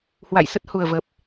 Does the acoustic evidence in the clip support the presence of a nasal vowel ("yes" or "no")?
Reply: no